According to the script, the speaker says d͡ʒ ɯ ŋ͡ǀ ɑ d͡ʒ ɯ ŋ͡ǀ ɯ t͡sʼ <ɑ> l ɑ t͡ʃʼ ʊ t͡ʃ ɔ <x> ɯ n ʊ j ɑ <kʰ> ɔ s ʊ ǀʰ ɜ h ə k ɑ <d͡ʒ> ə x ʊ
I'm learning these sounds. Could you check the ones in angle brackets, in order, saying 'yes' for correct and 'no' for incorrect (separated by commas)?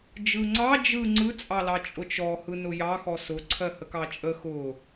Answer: yes, no, no, no